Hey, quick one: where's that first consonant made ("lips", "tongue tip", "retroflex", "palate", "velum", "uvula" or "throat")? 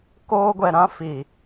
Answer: velum